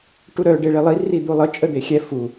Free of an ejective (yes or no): no